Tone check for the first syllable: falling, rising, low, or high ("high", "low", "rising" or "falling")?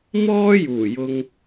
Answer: high